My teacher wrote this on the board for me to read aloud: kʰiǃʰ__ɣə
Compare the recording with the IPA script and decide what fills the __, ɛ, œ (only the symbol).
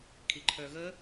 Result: œ